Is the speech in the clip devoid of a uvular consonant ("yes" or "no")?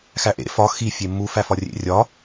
yes